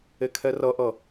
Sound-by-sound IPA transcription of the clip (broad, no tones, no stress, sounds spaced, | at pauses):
e kʰ ɛ r ʌ ʔ ʌ